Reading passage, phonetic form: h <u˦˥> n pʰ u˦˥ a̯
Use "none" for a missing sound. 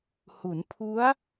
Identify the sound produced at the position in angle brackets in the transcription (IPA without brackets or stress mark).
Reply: u˩˦